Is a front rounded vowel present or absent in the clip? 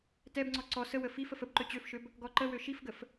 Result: present